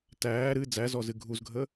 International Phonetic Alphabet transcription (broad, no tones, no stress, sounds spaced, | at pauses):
t æː ɾ ɨ d͡z æ z ɔ z ɨ ɡʱ u z ɡʱ ə